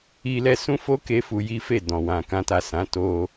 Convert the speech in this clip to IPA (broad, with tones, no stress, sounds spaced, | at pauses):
i˧ l ɛ˧ s ũ˦ f o˦ k e˦ f u˧ j i˦ f e˦˨ d ɔ̃˨ w ã˨ k ã˧ t a˨ s ã˨˦ t o˧